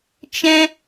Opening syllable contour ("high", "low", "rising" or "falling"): high